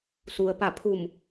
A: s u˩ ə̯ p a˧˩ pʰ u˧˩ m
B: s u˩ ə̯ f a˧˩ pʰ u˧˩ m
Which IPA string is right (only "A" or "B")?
A